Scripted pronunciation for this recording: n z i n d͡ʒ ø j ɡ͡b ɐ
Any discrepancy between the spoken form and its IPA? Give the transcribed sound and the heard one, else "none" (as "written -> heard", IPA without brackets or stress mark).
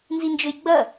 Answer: none